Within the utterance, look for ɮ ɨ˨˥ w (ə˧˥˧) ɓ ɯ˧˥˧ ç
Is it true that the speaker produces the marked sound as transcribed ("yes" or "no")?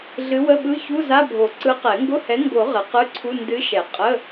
yes